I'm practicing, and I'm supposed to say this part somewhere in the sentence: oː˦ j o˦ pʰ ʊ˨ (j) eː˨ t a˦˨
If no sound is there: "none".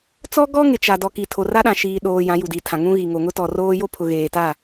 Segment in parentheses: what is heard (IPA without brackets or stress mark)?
ɣ